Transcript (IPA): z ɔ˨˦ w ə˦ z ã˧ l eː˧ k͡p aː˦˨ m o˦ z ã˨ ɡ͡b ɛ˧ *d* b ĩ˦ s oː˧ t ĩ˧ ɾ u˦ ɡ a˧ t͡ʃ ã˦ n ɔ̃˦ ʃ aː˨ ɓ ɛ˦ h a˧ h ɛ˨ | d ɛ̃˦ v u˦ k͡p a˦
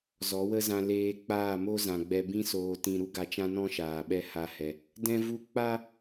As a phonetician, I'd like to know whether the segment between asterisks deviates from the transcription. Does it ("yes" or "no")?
yes